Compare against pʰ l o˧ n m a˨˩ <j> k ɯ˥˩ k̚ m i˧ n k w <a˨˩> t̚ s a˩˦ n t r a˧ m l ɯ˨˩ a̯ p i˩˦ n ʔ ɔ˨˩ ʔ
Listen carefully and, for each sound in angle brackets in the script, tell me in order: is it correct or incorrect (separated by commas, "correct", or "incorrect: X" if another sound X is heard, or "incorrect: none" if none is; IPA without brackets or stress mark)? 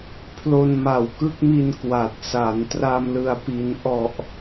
incorrect: w, correct